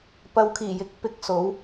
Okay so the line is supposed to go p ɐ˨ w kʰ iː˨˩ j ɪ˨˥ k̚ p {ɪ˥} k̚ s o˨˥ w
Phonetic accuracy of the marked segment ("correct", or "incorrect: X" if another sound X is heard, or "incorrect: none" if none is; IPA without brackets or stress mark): incorrect: ɪ˨˥